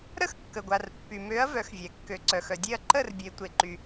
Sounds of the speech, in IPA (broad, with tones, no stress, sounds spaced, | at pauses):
ɾ ə˥˨ x kː ə˩ ɡʷ a˩ r pː y˩ m ø˩˧ ɐ̯ v œ˩˧ x vʲ ɛ˩ kː ø˩˧ ǀ œ˩ x œ˩ dʲ e˥˨ ɐ̯ ǃ ə˥˨ r bʲ e˩˧ tʷ e˩ ǃ y˩